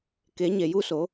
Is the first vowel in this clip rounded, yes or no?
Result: no